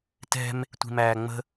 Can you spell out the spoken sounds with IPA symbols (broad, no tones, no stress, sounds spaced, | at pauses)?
t ɛ̤ m | tʷ i̤ m æː ŋ͡m ə̤